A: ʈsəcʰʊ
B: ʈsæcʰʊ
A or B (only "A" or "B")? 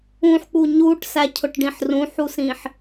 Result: B